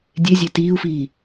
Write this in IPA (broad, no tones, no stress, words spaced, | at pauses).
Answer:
dʲezʲe tiːu̯fiː